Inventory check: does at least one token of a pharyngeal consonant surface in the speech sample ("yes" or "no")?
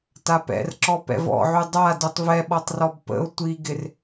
yes